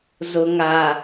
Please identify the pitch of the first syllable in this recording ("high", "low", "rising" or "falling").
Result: low